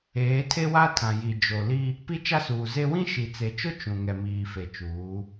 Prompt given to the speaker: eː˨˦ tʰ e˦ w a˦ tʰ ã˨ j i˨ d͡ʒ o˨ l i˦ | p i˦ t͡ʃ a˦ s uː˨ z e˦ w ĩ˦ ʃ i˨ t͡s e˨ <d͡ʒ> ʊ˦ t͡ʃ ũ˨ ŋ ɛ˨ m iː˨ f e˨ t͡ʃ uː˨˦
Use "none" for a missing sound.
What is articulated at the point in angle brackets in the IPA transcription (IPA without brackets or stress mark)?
t͡ʃ